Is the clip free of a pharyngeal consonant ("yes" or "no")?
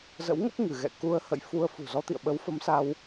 yes